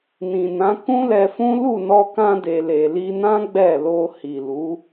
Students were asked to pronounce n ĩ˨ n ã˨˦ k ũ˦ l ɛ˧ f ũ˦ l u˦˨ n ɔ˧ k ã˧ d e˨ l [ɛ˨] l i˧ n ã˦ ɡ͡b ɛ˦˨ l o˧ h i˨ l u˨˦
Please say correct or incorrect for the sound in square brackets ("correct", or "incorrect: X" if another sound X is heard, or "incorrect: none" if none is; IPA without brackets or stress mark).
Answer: incorrect: e˨